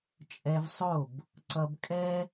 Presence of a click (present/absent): present